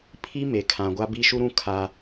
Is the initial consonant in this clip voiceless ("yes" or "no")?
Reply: yes